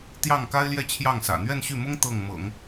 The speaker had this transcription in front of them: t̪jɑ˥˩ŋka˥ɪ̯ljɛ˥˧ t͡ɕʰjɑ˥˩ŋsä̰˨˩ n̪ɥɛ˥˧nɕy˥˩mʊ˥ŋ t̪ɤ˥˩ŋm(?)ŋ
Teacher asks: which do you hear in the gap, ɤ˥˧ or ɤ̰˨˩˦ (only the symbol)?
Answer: ɤ̰˨˩˦